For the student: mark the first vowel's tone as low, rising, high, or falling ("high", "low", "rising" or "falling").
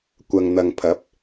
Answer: low